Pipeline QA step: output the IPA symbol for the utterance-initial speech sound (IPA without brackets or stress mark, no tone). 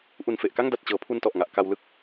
ʔ